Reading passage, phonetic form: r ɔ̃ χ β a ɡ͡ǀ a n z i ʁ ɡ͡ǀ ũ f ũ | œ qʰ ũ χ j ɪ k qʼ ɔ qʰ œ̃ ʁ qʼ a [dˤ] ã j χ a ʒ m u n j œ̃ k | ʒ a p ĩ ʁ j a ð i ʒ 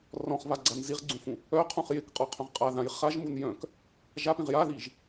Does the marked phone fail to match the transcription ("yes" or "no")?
yes